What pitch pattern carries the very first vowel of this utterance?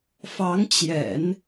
rising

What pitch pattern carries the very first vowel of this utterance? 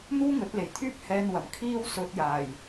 high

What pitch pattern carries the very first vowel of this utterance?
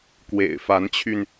low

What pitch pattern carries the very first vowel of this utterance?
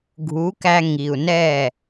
rising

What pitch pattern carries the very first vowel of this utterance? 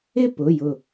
falling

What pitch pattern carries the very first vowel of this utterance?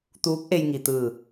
rising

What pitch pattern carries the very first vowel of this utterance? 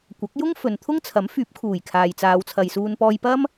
rising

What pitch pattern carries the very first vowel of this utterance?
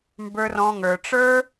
high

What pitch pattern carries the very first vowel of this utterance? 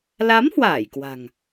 rising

